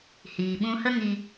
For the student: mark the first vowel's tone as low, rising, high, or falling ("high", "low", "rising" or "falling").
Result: low